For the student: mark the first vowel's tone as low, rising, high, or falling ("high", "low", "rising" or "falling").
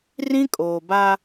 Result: high